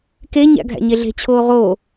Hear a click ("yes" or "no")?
no